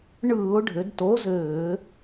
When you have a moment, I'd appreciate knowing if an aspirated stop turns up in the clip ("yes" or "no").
no